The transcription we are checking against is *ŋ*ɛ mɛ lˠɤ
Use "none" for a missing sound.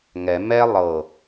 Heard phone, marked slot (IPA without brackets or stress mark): ŋ